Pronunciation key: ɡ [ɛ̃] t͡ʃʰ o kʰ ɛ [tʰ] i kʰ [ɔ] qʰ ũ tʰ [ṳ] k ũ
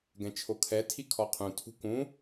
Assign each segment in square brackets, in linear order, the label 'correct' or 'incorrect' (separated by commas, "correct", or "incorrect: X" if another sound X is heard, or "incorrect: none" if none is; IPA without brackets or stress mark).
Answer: correct, correct, correct, correct